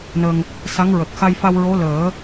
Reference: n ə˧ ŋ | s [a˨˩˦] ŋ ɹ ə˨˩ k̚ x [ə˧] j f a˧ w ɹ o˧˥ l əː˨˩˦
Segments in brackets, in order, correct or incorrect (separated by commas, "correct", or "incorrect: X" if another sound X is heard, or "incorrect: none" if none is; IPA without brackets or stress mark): incorrect: a˧˥, incorrect: a˧